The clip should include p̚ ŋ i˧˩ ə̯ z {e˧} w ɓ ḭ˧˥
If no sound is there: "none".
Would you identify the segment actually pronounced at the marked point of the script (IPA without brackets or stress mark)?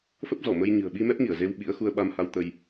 e˧